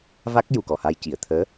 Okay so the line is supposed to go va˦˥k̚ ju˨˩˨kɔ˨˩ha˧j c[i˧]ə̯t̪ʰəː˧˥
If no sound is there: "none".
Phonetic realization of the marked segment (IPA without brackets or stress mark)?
i˨˩˨